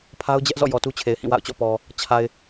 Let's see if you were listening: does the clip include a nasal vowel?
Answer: yes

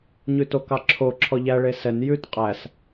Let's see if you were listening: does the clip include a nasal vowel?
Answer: no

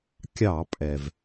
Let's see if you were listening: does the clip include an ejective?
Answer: yes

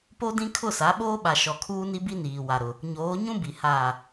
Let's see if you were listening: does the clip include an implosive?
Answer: yes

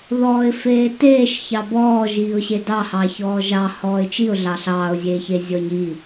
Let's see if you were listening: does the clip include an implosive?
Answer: no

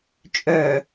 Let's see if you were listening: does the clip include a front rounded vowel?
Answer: yes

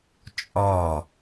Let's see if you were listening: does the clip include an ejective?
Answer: yes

